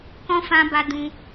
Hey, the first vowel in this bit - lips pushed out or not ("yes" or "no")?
yes